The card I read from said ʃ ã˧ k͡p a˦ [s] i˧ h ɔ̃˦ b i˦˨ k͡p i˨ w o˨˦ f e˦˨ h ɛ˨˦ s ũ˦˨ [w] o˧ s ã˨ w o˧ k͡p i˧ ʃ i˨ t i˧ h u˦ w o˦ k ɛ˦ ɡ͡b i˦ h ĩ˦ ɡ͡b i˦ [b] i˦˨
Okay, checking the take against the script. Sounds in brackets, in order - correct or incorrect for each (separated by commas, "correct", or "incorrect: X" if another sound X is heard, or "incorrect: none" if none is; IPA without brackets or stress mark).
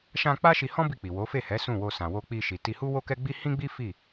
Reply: incorrect: ʃ, correct, incorrect: f